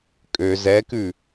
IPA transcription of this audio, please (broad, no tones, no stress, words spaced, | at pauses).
kʼø zɛkʉ